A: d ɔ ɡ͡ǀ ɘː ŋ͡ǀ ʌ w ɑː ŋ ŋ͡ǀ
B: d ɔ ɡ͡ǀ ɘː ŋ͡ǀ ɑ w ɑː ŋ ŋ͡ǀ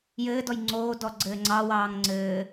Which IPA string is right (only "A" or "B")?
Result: B